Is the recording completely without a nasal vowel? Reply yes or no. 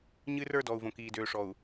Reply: no